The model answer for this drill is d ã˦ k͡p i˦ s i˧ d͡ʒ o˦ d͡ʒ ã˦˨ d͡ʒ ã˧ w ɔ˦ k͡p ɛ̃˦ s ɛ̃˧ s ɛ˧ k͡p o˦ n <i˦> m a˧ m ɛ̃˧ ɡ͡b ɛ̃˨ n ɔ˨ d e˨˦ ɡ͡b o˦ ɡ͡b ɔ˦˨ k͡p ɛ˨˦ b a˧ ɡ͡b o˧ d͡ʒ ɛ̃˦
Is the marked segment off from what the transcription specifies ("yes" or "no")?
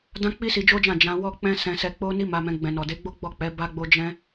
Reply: no